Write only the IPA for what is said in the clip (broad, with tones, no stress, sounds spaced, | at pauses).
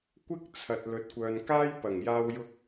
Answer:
kʷ ɪ˥ k̚ t͡sʰ ɐ˨ t̚ l ɵ˨ t̚ kʷ œː˨ n k aː˥ j p ɐ˨˩ ŋ j aː˧ w j ʊ˧ k̚